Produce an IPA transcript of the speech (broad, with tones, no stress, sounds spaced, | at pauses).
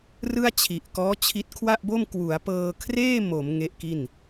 r ɯ˥˩ a̯ t͡ɕʰ i˨˩ ʔ k ɔː˦˥ t͡ɕʰ i˦˥ t̚ kʰ w a˥˩ ʔ b o˥˩ m k w u˩˦ a̯ p ɤː˧ kʰ r eː˥˩ m o˩˦ m ŋ e˦˥ ʔ k i˥˩ n